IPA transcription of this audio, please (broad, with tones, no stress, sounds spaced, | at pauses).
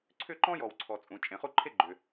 ǀʰ ʏ˥˧ ǃ ɔ̃˥ j ɔ˨ w ǀʰ ɔ˨ t͡sʼ ũ˨ t͡ʃʼ ẽ˨ χ u˥˧ ǃʰ e˥˧ ɡ͡ǃ ʏ˨